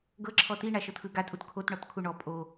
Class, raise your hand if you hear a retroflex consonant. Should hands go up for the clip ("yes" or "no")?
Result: yes